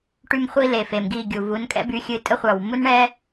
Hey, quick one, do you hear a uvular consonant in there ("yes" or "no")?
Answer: yes